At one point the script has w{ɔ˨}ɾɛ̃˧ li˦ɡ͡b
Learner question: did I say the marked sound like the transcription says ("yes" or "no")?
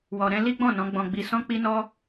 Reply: yes